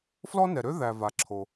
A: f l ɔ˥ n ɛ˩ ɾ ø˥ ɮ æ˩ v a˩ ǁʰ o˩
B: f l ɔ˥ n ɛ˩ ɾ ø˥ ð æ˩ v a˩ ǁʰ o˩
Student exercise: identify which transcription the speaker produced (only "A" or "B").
B